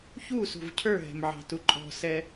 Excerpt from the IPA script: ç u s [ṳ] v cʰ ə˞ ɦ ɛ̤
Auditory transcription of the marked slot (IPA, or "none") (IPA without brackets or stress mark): ṳ